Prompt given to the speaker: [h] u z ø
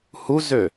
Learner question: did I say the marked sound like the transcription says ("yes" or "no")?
yes